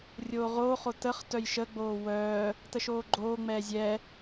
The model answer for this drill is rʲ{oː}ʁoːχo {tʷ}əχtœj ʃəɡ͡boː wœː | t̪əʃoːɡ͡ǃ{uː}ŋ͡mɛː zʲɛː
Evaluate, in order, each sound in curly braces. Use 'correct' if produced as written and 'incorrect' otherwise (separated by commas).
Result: correct, incorrect, incorrect